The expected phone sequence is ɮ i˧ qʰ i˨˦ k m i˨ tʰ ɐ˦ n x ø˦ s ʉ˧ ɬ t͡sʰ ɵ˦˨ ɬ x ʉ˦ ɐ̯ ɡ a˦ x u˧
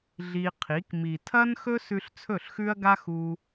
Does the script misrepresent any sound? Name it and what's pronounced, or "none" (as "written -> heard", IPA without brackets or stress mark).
ø˦ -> ɵ˦